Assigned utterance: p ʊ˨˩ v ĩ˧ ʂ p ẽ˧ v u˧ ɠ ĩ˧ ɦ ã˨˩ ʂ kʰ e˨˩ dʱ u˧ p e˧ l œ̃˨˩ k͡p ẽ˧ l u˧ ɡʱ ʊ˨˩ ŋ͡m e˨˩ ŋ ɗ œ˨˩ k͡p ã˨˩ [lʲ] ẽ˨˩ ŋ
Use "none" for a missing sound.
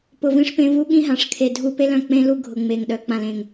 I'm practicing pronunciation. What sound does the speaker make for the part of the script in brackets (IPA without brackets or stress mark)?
l